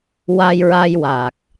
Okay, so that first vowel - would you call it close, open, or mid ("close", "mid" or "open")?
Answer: open